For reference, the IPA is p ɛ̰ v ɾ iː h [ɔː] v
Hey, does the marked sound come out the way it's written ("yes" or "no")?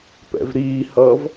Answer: no